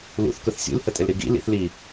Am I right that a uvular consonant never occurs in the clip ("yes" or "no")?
yes